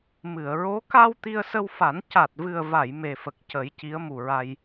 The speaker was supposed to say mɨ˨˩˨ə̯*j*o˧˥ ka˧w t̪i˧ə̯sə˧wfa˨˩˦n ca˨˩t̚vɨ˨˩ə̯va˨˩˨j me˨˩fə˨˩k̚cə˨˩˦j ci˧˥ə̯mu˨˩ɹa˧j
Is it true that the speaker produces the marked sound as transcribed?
no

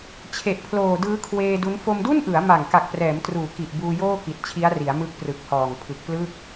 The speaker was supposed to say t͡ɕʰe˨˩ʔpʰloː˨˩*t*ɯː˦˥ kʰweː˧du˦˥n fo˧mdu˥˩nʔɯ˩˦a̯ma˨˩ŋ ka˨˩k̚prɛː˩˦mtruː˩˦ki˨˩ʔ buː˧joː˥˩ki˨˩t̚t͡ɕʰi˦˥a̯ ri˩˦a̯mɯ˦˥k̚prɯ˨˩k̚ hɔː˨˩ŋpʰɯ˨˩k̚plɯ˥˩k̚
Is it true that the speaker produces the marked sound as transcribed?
no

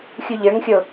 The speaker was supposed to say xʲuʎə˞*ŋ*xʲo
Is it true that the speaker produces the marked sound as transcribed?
yes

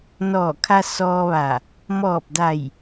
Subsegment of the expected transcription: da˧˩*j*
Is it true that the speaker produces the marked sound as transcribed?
yes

